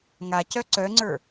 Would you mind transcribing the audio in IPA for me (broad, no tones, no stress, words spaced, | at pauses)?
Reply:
ŋacœ ǀœŋ͡ǀə˞